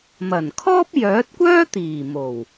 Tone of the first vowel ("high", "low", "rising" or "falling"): low